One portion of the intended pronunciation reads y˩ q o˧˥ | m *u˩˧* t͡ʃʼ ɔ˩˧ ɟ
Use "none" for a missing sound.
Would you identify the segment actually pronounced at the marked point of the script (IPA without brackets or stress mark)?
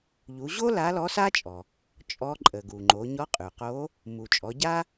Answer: u˩